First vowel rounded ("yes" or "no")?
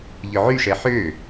yes